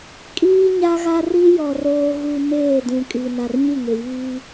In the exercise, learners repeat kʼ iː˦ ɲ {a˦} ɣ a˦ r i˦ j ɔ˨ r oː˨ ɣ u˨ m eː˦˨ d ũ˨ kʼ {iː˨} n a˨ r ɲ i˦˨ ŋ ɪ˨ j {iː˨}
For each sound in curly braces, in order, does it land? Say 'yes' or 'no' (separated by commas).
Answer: yes, no, no